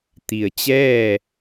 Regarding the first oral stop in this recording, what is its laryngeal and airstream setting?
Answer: plain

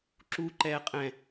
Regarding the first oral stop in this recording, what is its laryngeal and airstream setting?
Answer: click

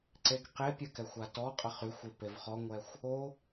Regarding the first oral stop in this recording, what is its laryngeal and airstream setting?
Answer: click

